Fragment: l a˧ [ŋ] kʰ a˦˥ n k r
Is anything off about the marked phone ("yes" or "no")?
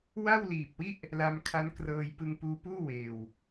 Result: yes